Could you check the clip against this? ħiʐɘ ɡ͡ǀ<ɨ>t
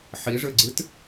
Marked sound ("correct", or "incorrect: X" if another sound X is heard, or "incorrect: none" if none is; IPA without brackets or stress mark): correct